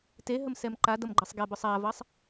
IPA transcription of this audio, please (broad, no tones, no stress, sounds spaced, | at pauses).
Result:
t e ɦ ə m s ɛ m ǃ a d ʌ m ɡ͡ǃ ɤ sˤ ɡ ɛ b ʊ sˤ a v ʌ sˤ